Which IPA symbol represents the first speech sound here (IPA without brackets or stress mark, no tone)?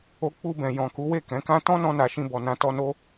o